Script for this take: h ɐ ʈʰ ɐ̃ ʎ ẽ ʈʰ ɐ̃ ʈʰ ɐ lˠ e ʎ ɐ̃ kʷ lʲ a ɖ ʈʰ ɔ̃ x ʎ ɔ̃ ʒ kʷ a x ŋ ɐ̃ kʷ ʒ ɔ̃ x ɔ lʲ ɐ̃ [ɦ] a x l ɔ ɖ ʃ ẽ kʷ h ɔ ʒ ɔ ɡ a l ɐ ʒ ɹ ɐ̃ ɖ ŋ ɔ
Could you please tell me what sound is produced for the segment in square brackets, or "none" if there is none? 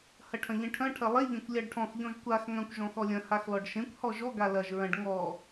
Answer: h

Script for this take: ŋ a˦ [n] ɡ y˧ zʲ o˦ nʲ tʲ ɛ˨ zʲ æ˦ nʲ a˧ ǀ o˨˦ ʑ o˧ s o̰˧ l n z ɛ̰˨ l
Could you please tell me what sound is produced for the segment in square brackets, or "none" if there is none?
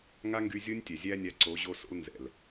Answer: ŋ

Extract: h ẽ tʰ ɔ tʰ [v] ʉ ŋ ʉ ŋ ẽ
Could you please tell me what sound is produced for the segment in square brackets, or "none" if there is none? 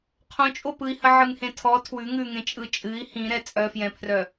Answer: w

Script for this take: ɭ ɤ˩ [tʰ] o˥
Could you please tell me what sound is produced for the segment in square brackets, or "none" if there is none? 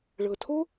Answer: tʰ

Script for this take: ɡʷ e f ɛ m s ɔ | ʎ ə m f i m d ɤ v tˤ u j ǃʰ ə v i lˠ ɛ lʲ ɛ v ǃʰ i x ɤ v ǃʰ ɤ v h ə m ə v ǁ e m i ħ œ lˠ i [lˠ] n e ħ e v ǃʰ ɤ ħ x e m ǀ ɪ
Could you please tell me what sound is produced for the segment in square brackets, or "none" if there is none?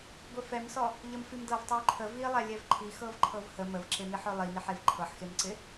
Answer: none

